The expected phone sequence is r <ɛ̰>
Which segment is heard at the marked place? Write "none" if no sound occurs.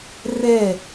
ɛ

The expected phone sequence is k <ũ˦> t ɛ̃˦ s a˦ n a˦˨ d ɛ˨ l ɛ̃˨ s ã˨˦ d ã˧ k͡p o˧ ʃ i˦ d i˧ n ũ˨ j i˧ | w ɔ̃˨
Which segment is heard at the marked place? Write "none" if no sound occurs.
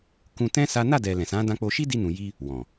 ũ˧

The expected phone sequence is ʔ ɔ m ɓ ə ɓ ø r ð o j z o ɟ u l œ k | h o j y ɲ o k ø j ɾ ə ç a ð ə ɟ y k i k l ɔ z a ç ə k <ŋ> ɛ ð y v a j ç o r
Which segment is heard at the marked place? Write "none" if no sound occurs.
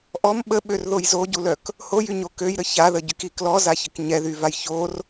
ɲ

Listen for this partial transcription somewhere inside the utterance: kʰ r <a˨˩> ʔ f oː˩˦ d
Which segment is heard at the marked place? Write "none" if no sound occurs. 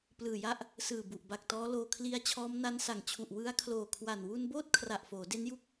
a˨˩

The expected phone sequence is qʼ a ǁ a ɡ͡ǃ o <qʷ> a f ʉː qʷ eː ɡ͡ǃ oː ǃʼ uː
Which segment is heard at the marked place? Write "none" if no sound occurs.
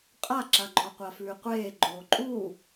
qʷ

